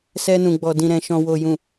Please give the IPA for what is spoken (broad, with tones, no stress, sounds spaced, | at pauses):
s ɛ˧ n ũ˨ ɡ͡b ɔ˨ d ĩ˨ ɾ ɛ̃˨ ʃ ɔ̃˨ w o˨ j ũ˨